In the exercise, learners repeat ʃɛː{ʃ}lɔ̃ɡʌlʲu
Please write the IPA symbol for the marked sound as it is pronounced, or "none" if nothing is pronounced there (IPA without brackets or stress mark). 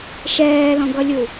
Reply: none